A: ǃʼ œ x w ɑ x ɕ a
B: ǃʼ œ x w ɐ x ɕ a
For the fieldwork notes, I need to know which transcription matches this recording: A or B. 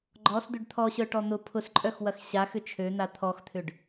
B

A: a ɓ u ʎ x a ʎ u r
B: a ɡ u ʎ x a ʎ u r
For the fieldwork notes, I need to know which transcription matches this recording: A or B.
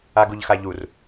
B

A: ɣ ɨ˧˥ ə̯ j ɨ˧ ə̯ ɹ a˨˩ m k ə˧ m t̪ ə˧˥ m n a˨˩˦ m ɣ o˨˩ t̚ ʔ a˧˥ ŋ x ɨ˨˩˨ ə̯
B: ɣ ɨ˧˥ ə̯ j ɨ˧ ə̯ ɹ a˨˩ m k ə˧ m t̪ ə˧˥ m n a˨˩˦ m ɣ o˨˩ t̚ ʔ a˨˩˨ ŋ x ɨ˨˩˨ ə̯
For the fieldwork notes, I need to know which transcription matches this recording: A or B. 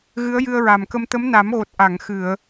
B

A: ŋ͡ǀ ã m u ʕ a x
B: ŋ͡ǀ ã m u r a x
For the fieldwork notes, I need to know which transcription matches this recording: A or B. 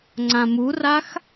B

